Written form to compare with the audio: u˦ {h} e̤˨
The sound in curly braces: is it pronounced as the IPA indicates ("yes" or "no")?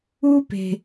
no